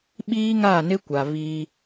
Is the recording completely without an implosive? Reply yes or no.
no